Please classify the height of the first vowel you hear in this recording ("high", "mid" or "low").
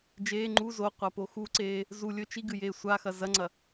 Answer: mid